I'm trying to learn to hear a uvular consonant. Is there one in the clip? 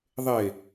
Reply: no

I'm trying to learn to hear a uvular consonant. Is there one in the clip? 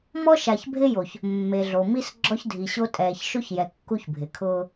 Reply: no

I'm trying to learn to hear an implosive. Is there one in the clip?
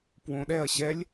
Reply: yes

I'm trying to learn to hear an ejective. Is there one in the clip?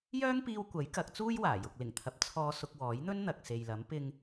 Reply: no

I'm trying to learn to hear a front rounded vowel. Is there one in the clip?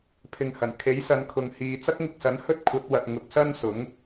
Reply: no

